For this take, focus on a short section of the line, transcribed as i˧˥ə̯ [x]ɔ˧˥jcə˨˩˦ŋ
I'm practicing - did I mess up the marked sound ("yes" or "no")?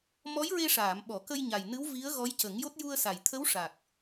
yes